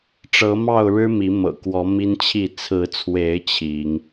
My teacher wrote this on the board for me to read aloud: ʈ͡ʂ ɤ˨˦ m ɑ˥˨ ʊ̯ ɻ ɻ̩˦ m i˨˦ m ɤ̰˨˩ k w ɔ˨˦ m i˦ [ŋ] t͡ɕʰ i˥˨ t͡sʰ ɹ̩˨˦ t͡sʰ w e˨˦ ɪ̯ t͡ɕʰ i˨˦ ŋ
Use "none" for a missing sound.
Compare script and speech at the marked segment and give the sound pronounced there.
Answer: n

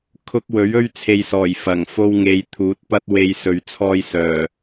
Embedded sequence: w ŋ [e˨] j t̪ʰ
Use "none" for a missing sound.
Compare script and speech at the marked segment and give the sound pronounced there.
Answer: e˨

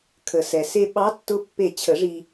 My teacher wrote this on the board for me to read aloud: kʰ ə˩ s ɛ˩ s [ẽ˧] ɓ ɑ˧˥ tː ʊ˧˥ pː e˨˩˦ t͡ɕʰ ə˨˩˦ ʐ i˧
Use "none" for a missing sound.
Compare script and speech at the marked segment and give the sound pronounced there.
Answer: e˧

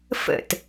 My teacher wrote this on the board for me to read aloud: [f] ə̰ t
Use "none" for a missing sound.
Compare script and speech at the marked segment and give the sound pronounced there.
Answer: f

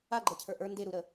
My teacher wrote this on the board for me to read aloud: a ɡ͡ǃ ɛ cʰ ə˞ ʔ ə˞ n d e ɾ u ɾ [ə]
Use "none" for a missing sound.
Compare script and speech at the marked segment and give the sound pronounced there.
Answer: ə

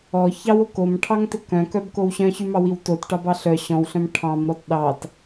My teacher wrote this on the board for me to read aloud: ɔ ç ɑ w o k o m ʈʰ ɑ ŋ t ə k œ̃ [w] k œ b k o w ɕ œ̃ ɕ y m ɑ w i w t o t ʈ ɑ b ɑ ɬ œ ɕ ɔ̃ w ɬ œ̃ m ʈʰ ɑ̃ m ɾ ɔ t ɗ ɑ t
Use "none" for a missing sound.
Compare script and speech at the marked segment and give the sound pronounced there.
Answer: none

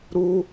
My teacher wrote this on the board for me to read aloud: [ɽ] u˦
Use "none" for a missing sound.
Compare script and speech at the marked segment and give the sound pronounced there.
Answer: ɾ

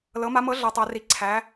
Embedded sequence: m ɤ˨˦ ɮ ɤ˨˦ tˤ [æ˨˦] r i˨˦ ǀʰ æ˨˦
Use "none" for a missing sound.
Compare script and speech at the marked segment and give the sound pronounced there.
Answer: æ˨˦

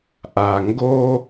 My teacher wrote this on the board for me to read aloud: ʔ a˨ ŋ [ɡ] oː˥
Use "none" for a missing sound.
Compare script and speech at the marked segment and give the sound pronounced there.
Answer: ɡ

